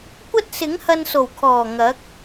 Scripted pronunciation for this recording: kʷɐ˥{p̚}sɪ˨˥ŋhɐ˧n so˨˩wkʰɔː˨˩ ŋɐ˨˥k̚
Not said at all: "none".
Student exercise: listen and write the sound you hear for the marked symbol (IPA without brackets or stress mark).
t̚